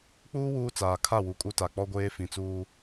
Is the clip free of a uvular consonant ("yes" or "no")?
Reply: yes